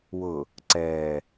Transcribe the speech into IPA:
wʊ | ǀɛː

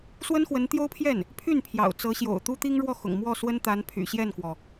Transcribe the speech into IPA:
swə˥nxwə˧˥nt̪jo˥ʊ̯pʰjɛ˥˩n | pʰy˥˩n pʰjɑ̰˨˩ʊ̯t͡sɤ˧˥ɕjo̰˨˩ʊ̯ t̪u˥t̪i˥ŋɻwɔ˥˩xʊ̰˨˩ŋ mwɔ˥˩swə˥nt̪a˧˥npʰy̰˨˩ ɕjɛ˥˩nkwɔ˩

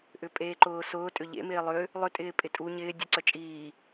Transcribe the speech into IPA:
ʔʏpʼeːǃʊːsʊː tʼʏʎḛ mɪːlˠʏ | lˠʏ tʼɪːpʼɪtʼu ɲɪː dʲuǀœt͡ʃʼiː

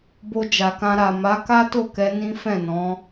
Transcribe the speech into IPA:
bo˧d͡ʒa˨kã˧ ɾa˨ma˨˦ ka˦to˦˨kɛ˧ nĩ˦fɛ̃˦˨nɔ̃˨˦

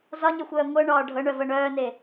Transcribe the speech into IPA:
zɒɲəxʷœː ŋʷɤɳɒː ɖʱɤɳœvɤ ɳœːne

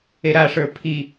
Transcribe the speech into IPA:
eɾaʂə˞ pʰi

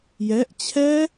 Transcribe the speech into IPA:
jɛʔ t͡ɕʰɛ

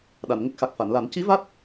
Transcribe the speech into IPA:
ɗa˨˩˨nŋə˦˥k̚xa˨˩k̚ fa˨˩˨nla˨˩˦n ci˧˥va˦˥t̚

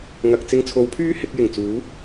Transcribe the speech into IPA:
ŋɐ˨k̚ t͡sɪ˧ŋt͡sʰo˨˥wpʰyː˥ hɪ˨˥k̚jɪ˨˩ŋ t͡suː˨˥

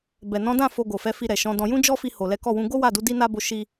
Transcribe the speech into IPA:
bɛ˨nɔ̃˨˦dã˦˨ fo˧ɡo˨fɛ˨˦fi˧ ɾɛ˨ʃɔ̃˨˦dɔ̃˧ jũ˦d͡ʒɔ˦fi˧ ho˨lɛ˨˦kɔ˦˨wũ˧ ɡo˦wa˦˨du˨˦ di˦na˦ bo˧ ʃi˦

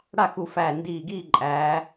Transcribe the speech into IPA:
ɽa˥˨xu˧˩fæː˧˩ ndiː˧˩ɡiː˥˨ǃʼæː˩˧

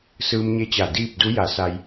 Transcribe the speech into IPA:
sɯː˧mɲe˧˥t͡ɕa˧˩ diː˥˨p̚du˧˥ ja˩˧sa˧j

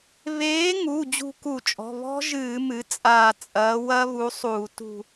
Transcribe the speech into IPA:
βeː˨˥ŋu˩˧˩ d͡ʑṳ˦˨ku˧˩˧t͡ʃʼɔ̤˩˧˩ βɔ̤˦˥ʒɨː˧˩˧ mɨ˨˥t͡sʼaː˦˨ t͡sʼɐː˨˥wɐ˦˥ βu˨˥sˤuː˧˩˧ tṳ˦˨

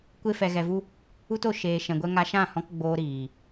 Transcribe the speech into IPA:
kʷe˦fɛ˧ɣɛ˧vu˦ | u˦to˧ ʃeː˧ ʃɛ̃˧ɡʷɛ˦ ŋa˧ʃã˦˨hɔ̃˧k ɡ͡boː˧ɾiː˨

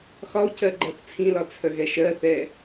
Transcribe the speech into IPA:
xɒu̯cɜ ɡ͡ǃɜθt͡sʰĩlɒ t͡sʰœɣɛʃɜθɛ

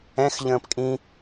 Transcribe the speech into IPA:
ɛ̃x ʎə̃ːpkʼĩ

